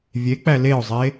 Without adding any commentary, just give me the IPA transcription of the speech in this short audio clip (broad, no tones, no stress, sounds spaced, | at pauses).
vʲ e k͡p æ l e ʊ̯ zˤ e